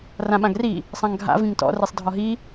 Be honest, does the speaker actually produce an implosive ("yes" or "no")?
yes